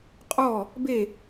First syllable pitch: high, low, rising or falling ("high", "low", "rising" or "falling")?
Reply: falling